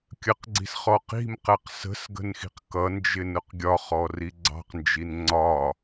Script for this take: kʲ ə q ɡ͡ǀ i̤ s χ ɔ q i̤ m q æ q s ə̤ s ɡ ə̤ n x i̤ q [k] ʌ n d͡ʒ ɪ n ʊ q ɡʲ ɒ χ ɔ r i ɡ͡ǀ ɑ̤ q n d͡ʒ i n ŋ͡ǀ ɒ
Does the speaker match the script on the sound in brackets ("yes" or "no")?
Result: yes